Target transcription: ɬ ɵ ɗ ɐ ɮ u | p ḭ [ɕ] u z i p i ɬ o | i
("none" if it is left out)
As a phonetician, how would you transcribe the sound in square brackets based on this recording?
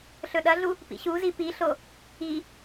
ɕ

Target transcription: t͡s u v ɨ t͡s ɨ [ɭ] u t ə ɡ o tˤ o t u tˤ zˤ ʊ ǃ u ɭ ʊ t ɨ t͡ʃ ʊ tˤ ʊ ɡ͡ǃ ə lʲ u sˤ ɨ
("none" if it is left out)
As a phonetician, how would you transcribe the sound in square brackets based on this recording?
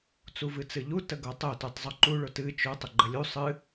ʎ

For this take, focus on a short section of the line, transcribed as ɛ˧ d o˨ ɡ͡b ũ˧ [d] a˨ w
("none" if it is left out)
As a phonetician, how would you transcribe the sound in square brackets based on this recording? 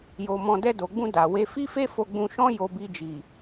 d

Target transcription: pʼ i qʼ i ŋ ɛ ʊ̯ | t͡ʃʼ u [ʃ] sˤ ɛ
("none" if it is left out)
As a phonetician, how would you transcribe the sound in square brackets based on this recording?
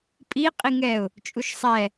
ʃ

